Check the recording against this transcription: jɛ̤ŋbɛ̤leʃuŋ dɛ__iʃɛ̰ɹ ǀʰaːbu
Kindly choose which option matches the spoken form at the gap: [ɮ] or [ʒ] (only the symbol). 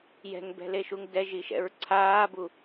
ʒ